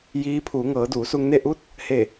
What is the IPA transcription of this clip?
j iː˧˥ pʰ uː˩˧ ŋ ɤː˩˧ d uː˩˧ s u˧ ŋ n e˥˨ ʔ u˥˨ t̚ | h e˧˩

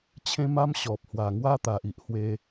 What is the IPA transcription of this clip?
t͡ɕʰ ẽ˦ m a˦ m ɕ ɔ˨ p̚ h w a˨˩ ŋ w a˦ t̪ a˨ ʔ i˨ ʔ h w e˧

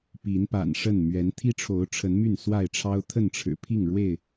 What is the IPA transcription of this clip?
p i˨˦ n p a̰˨˩ n ʂ ə˥˨ n m ɥ ɛ˨˦ n t̪ʰ i˦ ʈ͡ʂʰ o˨˦ ʊ̯ ʈ͡ʂʰ ə˨˦ n m y˥˨ n s w a˥˨ ɪ̯ ʈ͡ʂʰ ɑ˦ ʊ̯ t̪ʰ ə˥˨ n ʈ͡ʂʰ ɻ̩˨˩ pʰ i˥˨ ŋ ɻ w e˥˨ ɪ̯

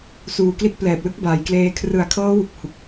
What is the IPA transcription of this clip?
s uː˨˩ k l i˦˥ t̚ p l ɛː˨˩ p̚ l ɯ˥˩ k̚ b aː˩˦ j k l eː˧ kʰ r ɯ˨˩ a̯ kʰ ɤː˦˥ w u˨˩ k̚ h u˨˩ k̚

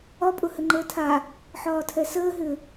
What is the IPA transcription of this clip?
ɒ pʼ ʊ h ɘ ŋ͡ǃ əː tʰ a | ħ ɒː tʰ ɛ s əː ɦ ʏ

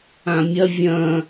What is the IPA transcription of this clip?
ã mʲ ɐ vʲ ɐ̃

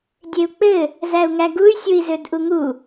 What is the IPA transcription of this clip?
dʲ e u̯ k͡p ɘ | z æ u̯ ŋ æ ɡ u y̯ sʲ u i̯ z ø d ʔ u ŋ u

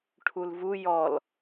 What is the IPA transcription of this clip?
ʈʰ u l v u j ɔ l

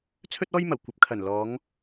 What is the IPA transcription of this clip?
t͡sʰ ɵ˥ t̚ ɔː˥ j m ɐ˨˩ w kʷ ɐ˨ p̚ kʰ ɐ˨˩ n l ɔː˨˧ ŋ

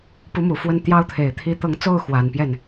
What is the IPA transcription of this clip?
p u˧˥ m u˨˩ f w ə˥˩ n t̪ j ɑ˥ ʊ̯ t̪ʰ e˨˩ ɪ̯ t̪ʰ i˧˥ t̪ ɤ˧˥ ŋ t͡s o˥˩ ʊ̯ x w a˨˩ n p j ɛ˥˩ n

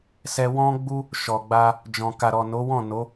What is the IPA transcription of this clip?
s ɛ˧ w ɔ̃˦ ɡ͡b u˦ | ʃ ɔ˨ ɡ͡b a˧ | d͡ʒ ɔ̃˨ k a˨ ɾ ɔ˨ n o˨˦ w ɔ̃˦˨ n o˨˦

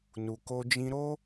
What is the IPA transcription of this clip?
n u˨ k o˧ d͡ʒ ĩ˦ ɾ o˦

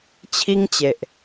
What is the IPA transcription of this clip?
t͡ɕʰ i˦ ŋ t͡ɕ e˨ ʔ

